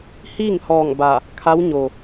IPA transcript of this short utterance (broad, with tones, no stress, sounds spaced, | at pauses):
h iː˥˨ ŋ h ɔː˧˩ ŋ b a˧˩ | kʰ a˧˥ w ɲ o˩